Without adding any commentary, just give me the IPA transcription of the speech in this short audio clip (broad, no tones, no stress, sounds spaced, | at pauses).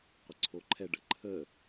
qʷ ə ǀʰ o ǃʰ ɛ ɖ ə ǃʰ ə